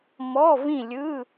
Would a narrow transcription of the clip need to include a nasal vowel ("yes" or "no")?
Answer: yes